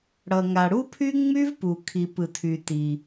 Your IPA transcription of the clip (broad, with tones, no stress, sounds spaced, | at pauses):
ɽ ʌ˩ ŋ a˩ ɽ u˥ pʰ y˥ ŋ͡m y˥ v p u˩ kʰ i˩ p ɯ˩ tʰ y˩ t i˩